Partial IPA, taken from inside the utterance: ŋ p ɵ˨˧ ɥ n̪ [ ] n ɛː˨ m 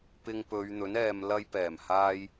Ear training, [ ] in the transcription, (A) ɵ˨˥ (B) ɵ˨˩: A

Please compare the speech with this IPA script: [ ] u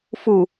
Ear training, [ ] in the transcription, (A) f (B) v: A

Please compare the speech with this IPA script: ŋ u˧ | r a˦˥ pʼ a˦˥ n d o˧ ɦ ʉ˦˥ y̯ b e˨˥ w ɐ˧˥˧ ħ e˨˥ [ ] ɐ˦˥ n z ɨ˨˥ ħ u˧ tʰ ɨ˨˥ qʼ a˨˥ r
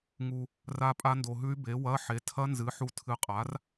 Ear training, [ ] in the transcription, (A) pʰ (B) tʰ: B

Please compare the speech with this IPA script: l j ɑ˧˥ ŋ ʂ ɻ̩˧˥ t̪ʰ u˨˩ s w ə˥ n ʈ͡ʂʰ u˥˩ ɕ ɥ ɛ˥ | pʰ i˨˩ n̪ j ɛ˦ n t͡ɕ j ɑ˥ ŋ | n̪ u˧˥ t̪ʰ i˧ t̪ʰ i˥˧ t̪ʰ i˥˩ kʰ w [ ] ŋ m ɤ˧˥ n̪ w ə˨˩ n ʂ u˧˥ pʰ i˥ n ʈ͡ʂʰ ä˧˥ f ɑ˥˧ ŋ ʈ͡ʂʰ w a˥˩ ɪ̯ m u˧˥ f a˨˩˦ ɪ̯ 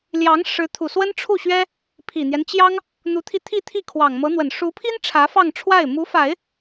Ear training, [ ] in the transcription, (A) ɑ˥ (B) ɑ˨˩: B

